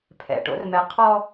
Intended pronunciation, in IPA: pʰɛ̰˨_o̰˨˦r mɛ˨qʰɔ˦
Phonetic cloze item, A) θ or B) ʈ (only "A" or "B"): B